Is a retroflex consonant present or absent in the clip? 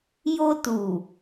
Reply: absent